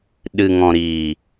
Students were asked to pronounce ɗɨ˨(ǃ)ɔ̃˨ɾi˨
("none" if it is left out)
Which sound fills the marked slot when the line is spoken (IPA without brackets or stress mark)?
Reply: ŋ